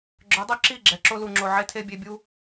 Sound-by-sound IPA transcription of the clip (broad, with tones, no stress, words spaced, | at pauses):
ɡ͡ǁœ˨˦dˤœ˦ǁi˦˨ ɡ͡ǁɛ˨ǁo˦ lu˨ŋ͡ǁo˨ ʕe˦tʰe˦ bʲe˧bʲu˦